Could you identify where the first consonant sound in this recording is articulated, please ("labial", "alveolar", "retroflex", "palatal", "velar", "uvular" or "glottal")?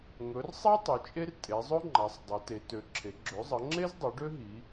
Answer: velar